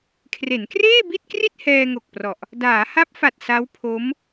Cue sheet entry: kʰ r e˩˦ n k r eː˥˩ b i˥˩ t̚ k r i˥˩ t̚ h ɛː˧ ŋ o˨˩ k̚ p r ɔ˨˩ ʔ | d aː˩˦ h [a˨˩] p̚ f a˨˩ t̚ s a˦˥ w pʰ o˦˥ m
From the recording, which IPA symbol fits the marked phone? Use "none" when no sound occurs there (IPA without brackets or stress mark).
a˦˥